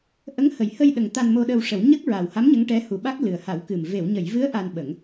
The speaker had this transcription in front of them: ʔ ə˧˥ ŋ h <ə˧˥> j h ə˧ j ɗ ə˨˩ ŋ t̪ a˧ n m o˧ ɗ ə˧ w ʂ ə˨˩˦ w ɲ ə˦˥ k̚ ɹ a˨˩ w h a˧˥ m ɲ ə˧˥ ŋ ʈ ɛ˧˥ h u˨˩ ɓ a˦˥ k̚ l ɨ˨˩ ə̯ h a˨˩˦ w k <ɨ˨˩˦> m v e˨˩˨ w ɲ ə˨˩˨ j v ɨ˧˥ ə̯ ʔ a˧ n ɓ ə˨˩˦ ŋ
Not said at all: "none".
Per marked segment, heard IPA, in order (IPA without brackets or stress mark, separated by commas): ə˨˩˨, ɨ˨˩